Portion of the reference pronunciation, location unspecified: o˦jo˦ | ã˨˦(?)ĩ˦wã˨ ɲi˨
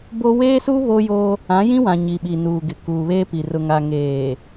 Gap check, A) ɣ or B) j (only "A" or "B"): B